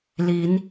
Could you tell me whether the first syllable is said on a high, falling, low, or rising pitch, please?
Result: rising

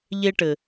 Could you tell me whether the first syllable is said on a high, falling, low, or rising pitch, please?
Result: high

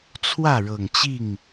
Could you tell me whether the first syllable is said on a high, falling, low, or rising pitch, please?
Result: falling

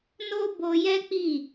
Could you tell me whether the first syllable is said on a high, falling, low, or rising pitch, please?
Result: high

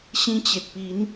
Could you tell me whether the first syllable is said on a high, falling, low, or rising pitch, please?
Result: high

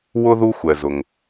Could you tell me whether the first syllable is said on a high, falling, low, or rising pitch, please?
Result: high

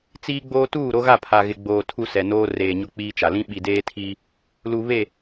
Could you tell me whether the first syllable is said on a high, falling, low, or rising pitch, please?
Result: high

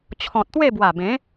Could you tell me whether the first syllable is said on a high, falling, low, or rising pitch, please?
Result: low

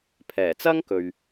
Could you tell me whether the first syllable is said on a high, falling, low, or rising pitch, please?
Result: low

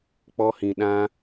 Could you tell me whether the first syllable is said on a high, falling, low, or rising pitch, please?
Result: high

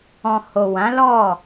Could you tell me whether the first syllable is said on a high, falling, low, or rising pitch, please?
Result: low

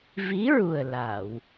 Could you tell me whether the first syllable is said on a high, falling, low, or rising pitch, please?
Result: rising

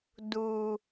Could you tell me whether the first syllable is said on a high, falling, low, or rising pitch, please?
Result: low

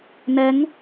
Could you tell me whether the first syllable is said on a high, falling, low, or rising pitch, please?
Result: rising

